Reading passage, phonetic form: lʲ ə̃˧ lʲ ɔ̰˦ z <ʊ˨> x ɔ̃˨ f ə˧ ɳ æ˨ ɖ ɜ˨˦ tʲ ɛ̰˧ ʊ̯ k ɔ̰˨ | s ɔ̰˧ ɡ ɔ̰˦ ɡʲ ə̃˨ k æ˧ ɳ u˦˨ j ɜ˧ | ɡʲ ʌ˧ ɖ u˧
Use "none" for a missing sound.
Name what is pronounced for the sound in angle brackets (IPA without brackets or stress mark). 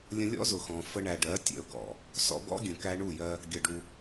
ʊ˨